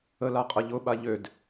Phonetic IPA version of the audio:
ə l a qʼ ɐ ʎ ʊ ɓ a ʎ ø d

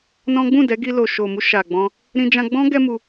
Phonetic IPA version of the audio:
n ɔ̃˦ ɡ͡b ũ˦˨ d ɛ˨˦ ɡ i˧ l o˨ ʃ o˨ m u˧ ʃ a˨ ɡ͡b ɔ̃˧ | ɾ ĩ˧ d͡ʒ ã˧ ɡ͡b ɔ̃˦ ɡ ɛ˦ m u˧

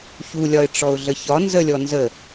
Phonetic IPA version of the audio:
ç u lʲ ɒ ɪ̯ ʈ͡ʂ ɔ ʊ̯ ɮ ə ç ɒ n z ə lʲ ɔ n z ə

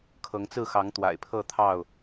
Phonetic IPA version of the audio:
kʰ ɤ˨˦ ŋ t͡s ɹ̩˥˨ x ɑ˨˦ ŋ t̪ w a̰˨˩ ɪ̯ pʰ ɤ˥˨ t̪ʰ ɑ˥˨ ʊ̯

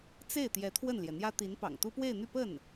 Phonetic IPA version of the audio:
t͡s e˥˩ ɪ̯ t̪ j ɛ˧˥ t̪ʰ w ə˥˩ n l j ɛ˩ n̪ j ä˥ t̪ i˧˥ n p ɑ̰˨˩ ŋ t̪ u˥ p w e˥˧ ɪ̯ n̪ y˥˧ p ə˥˩ n

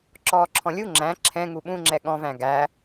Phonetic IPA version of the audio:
ǁ ɔː ǁʰ ɔ̃ lʲ u ŋ͡ǁ æ̃ ǁʰ ɛ̃ ŋ u ɓ ũ ŋ͡ǁ ɛ ɠ ɔ̃ v æ̃ ɡ æ

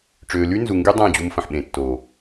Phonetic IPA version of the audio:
ʈ͡ʂ øː˨ l y˦ n z u˨ ŋ ɡ y˦ dˤ ã˦˨ d͡ʑ u˧ m f ə̃˨ ħ ɓ ẽ˨ tː oː˨

